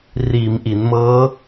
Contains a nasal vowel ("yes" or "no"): no